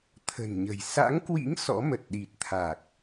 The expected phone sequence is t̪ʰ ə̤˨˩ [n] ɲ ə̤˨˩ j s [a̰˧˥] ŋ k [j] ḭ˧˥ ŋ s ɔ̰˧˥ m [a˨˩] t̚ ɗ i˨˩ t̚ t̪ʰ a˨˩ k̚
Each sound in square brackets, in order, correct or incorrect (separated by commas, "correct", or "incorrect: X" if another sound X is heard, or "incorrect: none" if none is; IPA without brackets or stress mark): correct, correct, incorrect: w, incorrect: ə˨˩